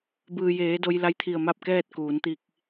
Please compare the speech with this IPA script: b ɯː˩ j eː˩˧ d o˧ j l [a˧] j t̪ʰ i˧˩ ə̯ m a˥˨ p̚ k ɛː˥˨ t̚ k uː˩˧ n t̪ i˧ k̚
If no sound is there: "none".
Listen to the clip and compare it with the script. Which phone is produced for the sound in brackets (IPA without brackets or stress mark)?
a˧˥